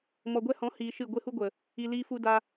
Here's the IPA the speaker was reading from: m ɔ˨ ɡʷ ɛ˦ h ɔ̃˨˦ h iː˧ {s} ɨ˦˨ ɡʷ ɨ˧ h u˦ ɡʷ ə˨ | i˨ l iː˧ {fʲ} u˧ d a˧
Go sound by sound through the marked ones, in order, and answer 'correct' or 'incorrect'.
incorrect, incorrect

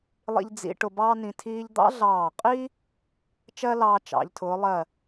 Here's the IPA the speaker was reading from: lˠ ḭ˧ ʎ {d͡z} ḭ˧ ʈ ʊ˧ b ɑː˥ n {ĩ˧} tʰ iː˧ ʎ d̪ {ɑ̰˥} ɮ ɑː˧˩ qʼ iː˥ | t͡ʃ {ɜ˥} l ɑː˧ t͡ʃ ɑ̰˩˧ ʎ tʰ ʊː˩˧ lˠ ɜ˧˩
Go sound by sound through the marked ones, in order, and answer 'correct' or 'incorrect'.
correct, correct, correct, correct

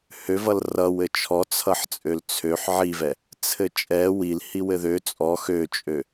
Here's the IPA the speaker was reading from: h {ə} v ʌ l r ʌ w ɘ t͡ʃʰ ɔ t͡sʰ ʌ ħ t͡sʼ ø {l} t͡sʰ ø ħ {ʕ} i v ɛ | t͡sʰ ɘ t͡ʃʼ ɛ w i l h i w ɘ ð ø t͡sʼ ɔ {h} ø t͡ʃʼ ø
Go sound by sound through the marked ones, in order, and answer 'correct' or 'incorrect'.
incorrect, correct, correct, incorrect

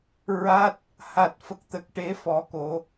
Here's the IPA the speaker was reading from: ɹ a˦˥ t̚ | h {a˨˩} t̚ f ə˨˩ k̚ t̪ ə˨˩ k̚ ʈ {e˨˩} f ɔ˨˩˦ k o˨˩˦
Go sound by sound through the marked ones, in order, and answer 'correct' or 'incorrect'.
correct, incorrect

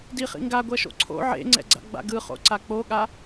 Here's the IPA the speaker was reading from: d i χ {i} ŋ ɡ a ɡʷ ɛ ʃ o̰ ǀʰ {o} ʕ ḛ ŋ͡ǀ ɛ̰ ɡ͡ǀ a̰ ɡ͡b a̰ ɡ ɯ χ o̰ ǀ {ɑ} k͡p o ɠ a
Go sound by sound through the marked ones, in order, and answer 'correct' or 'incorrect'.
incorrect, incorrect, incorrect

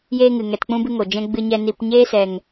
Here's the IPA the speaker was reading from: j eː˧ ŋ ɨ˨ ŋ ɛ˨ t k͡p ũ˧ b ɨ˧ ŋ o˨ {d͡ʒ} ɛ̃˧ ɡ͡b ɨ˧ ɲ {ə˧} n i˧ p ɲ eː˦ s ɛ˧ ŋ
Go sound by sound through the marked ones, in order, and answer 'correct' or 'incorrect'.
correct, incorrect

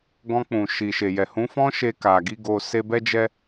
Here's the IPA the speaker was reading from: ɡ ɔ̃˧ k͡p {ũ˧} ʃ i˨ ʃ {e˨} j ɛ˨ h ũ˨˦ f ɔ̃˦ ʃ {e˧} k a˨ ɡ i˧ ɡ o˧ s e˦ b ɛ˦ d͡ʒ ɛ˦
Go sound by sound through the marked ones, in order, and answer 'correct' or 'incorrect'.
incorrect, correct, correct

